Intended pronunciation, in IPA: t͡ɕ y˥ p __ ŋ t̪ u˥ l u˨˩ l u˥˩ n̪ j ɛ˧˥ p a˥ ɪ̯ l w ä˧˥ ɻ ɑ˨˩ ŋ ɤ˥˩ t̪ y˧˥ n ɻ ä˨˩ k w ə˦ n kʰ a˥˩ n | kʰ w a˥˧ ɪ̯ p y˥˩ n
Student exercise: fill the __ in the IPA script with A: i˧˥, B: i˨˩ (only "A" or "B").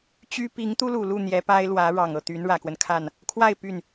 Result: A